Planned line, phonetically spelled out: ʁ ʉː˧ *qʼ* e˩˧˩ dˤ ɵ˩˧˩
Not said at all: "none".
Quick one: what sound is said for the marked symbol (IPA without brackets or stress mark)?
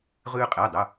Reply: qʼ